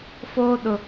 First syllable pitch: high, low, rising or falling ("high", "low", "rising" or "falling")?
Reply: high